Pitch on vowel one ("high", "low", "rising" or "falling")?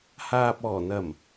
low